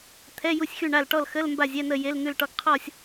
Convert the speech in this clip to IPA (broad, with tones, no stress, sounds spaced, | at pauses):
t̪ʰ ɛ˧˥˧ j u˥˨ sʲ x y˥˨ ɳ a˥˨ l ʈ ɔ˥˨ l x ə˧˥˧ l m b a˥˨ zʲ ɛ˧˥˧ n ə˥˨ j e˧˥˧ l n̪ ʉ˥˨ l ʈ ɔ˥˨ ɡ qʰ ɔ˥˨ sʲ